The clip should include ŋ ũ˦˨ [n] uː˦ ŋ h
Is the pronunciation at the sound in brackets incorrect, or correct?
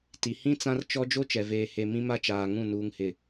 correct